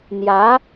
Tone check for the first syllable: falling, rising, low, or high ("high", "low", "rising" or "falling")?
rising